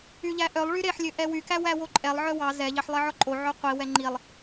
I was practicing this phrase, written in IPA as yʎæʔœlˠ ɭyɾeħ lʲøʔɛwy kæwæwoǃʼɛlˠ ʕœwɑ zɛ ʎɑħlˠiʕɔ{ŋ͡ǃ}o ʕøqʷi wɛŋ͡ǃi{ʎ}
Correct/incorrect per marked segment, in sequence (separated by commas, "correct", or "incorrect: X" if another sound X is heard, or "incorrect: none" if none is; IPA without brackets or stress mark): incorrect: ǃʼ, incorrect: lˠ